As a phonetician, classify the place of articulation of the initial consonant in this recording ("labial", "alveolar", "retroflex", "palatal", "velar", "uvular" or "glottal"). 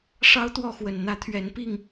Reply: retroflex